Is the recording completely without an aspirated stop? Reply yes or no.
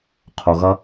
no